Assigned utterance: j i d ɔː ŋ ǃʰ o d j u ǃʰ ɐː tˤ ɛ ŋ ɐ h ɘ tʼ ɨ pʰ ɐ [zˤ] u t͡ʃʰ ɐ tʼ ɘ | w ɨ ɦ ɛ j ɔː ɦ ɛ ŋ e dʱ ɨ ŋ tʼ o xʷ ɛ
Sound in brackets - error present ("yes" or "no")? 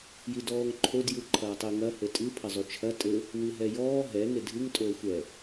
no